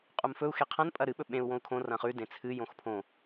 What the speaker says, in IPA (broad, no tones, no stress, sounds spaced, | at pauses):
qʼ u m f ɵ u̯ x e qʰ ɐ̃ n pʼ ɐ ɾ ɨ ɓ ɵ ɓ ẽ u̯ w õ u̯ kʰ õ r ɐ̃ χ ʉ d ẽ t͡sʰ ɨ j õ x pʰ õ